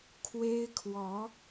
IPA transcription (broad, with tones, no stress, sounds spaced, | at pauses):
kʰ w e˥ ɪ̯ kʰ w ɔ˧˥